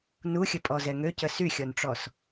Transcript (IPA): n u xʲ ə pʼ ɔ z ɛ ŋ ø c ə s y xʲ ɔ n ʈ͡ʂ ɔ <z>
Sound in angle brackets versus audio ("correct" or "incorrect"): incorrect